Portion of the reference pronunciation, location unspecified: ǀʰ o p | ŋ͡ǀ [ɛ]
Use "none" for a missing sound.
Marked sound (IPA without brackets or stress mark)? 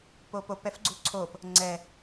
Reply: ɛ